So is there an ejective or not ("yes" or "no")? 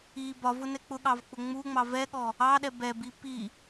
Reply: no